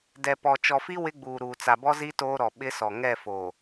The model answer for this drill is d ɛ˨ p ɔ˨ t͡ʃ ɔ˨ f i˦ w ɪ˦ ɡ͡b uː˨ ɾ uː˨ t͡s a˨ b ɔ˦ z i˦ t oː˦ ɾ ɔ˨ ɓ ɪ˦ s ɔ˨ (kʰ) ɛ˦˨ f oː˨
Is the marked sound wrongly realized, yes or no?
yes